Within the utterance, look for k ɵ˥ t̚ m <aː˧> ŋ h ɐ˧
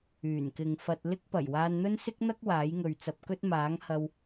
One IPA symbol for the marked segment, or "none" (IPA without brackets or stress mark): aː˨˥